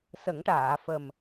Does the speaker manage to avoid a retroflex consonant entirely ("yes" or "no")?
no